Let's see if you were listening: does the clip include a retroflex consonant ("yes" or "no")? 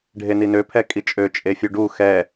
yes